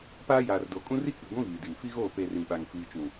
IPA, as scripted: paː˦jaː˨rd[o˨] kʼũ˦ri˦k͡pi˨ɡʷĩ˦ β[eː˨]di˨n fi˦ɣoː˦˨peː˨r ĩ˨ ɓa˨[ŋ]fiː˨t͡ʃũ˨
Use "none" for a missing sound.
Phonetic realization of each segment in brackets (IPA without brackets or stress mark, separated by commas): o˨, iː˨, ŋ